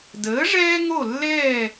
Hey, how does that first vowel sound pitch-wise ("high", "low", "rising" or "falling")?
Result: rising